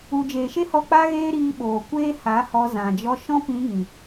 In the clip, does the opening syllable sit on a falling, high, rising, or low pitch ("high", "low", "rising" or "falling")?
low